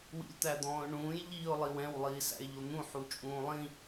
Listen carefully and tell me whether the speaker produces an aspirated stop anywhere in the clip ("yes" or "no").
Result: no